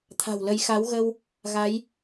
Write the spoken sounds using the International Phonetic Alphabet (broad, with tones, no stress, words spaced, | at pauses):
t̪ʰa̤˨˩wlə˨˦j xa˨˦wɣə˧w | ɣa˨˦j